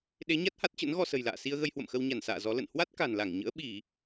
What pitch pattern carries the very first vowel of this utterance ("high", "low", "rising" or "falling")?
rising